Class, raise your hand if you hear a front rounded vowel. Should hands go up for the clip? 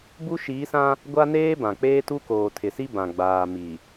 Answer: no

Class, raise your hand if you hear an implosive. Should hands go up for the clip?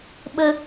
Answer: yes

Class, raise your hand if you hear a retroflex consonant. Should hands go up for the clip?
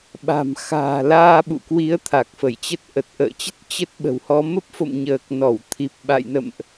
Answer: no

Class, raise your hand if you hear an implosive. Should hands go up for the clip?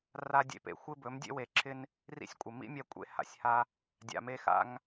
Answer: no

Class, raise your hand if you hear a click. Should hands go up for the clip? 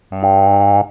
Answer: no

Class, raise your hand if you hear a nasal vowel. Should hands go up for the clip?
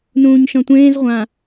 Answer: yes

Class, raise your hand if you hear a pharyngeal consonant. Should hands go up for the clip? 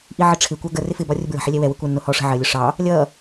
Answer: yes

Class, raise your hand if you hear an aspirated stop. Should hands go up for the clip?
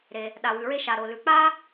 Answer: no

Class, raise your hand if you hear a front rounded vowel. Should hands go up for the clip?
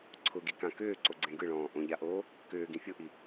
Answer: yes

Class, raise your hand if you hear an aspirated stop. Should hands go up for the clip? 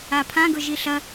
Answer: yes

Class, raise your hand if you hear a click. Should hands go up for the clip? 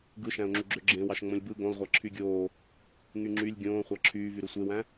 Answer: yes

